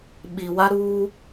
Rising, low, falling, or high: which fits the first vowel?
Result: low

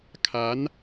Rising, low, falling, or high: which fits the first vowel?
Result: rising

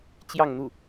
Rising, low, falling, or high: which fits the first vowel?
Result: falling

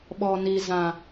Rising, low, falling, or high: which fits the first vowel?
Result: low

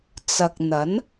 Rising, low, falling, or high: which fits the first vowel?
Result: low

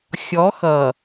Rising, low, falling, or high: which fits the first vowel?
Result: rising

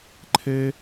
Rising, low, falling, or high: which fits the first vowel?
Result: high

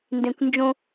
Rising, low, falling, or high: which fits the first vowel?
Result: low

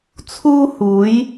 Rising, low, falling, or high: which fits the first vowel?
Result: high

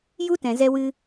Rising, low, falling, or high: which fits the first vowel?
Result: high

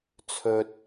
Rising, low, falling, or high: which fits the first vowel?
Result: low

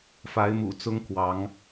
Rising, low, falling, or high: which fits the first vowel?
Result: rising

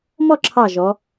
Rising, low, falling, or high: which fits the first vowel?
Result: falling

